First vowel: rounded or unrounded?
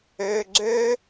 rounded